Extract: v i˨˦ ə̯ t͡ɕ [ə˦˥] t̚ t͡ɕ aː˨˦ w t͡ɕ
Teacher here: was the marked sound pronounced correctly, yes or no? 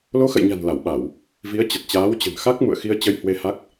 no